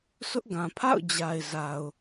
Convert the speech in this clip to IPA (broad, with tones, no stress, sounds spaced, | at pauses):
sʰ ʊ˦ ʔ ɡ ã˨ pʰ a̰˦˨ ʊ̯ d͡ʑ a˨ ɪ̯ z a˨ ʊ̯